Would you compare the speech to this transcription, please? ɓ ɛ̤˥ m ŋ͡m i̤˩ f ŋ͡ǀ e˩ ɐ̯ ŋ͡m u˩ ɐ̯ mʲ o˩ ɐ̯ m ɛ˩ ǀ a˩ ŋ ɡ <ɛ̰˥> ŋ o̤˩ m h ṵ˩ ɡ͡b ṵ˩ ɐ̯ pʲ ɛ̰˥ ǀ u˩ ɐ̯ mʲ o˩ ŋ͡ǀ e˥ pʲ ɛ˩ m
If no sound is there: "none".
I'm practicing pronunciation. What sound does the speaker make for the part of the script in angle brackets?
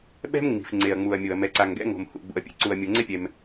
ɛ̰˥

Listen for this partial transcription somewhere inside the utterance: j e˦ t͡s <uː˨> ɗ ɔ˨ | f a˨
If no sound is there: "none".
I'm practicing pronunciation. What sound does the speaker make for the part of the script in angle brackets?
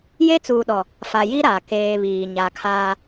uː˨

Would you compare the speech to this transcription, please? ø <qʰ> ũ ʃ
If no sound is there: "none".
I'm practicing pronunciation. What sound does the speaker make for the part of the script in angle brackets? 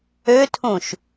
tʰ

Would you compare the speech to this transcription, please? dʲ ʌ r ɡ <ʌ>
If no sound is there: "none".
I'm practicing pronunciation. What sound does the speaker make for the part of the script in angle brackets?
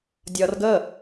ə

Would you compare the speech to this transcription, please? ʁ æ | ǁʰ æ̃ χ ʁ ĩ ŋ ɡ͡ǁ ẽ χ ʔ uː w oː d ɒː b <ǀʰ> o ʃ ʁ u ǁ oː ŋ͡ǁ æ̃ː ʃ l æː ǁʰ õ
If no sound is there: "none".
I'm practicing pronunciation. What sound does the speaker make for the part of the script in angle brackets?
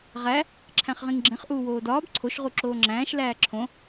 ǀʰ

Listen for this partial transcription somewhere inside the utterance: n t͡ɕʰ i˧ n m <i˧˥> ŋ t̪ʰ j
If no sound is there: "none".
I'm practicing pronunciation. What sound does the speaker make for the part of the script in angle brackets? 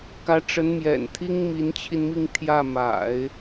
i˥˧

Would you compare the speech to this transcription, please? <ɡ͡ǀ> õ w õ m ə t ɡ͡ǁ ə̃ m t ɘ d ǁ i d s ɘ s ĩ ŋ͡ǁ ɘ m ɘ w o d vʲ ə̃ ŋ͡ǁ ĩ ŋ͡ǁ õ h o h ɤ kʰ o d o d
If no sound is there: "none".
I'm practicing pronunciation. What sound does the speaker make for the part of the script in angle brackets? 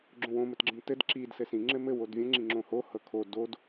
ɡ͡ǁ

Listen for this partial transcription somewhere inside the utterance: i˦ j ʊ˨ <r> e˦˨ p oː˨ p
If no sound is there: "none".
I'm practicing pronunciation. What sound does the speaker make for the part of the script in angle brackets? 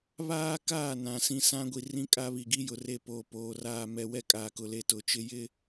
r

